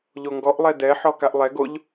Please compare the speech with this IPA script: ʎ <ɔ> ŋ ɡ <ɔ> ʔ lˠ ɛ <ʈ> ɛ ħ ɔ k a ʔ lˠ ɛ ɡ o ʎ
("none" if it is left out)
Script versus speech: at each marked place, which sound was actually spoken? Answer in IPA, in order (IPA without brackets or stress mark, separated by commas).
o, ɔ, d